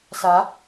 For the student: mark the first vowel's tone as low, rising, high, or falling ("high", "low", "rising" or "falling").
rising